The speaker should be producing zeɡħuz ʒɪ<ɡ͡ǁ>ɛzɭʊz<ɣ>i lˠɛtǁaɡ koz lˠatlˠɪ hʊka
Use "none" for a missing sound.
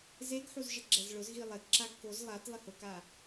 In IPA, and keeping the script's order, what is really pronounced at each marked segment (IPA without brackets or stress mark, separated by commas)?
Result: ɡ͡ǁ, ɣ